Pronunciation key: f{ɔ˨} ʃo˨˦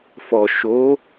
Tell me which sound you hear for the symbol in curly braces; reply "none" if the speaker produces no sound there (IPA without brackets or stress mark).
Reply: ɔ˨